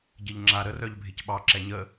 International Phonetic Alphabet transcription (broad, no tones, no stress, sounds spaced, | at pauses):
ɟ ə ʎ ŋ͡ǁ a ɾ ə r œ ʎ bʱ ɪ c ɓ ɑ ǁ ɛ ɲ ə